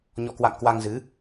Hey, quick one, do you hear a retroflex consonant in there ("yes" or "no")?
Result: no